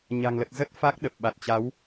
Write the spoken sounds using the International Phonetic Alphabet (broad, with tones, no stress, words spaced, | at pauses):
ɲa̤˨˩ŋlə˨˩t̚ zə˦˥t̚fa˦˥k̚ ɗə˨˩p̚ɓa˨˩t̚t͡ɕa˨˦w